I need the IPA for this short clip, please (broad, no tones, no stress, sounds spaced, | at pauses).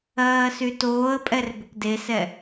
ɜː s y t oː ə̯ pʼ ɛ r b ʏ k d e s ɛ